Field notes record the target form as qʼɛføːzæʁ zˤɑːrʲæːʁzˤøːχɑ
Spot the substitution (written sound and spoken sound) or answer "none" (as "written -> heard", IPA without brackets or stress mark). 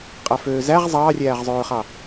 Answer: ɛ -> æ